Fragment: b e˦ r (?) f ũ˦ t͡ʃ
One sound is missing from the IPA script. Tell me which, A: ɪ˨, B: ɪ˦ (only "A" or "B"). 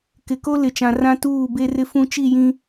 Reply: B